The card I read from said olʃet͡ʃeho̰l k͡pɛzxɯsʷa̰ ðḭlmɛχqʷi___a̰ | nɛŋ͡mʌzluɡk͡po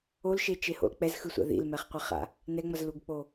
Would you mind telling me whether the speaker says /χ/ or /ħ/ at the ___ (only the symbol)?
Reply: χ